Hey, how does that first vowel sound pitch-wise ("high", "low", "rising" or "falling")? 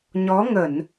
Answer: rising